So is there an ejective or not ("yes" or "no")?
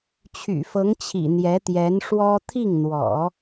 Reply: no